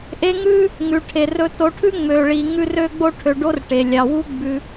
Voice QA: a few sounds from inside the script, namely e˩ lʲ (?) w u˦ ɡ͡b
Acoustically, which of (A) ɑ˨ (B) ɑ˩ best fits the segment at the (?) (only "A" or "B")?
B